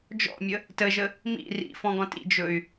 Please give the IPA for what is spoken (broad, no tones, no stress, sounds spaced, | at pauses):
d͡ʒ ɔ̰ mʲ ə | t ə ʒ ə | m ḭ r ḭ f ɔ̃ ɡ ɔ̃ t ḭ d͡ʒ ɵ y̯